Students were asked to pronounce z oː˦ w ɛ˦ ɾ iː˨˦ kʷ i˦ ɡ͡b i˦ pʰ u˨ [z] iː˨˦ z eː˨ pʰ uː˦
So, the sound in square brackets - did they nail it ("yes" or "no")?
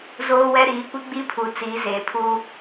no